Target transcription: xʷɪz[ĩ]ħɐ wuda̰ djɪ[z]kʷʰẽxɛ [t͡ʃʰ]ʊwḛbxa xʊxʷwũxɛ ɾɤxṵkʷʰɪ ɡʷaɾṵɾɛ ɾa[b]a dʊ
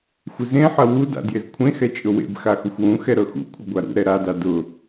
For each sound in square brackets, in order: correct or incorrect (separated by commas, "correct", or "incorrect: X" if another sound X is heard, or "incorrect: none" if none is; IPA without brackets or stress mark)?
incorrect: ẽ, correct, incorrect: t͡ʃʼ, incorrect: d